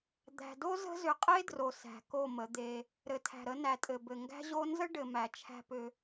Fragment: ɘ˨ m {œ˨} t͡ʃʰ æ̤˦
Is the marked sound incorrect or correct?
incorrect